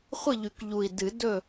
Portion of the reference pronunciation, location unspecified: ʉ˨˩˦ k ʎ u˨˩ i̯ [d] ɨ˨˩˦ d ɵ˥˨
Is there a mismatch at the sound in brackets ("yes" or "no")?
no